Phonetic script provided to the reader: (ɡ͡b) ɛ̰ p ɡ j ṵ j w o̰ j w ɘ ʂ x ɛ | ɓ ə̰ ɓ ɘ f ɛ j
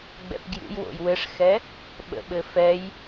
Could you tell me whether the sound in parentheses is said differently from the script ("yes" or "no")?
no